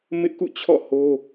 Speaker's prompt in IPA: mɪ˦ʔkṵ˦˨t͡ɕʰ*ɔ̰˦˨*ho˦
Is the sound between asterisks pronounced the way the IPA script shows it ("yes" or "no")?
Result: yes